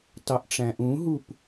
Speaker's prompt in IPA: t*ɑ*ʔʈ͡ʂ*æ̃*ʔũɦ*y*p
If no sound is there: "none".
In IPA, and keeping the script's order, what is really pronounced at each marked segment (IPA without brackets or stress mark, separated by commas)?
ɑ, æ̃, u